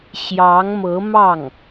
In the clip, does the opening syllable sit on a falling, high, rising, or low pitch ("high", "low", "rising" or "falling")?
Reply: rising